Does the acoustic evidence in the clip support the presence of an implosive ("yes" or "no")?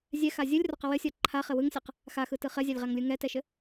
no